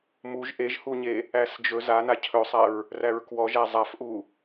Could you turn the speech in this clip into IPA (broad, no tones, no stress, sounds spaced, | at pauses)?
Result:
m u ʒ ʔ e ʒ h u ɲ e | æ s d͡ʒ ɵ z a n a cʰ ɵ sˤ æ ɹ | r æ ɹ k w ɔ ʒ æ zˤ a f ʔ u